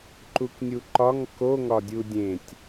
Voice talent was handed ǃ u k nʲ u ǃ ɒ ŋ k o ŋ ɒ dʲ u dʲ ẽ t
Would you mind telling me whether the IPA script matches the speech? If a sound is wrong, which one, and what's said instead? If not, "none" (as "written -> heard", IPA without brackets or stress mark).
t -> tʲ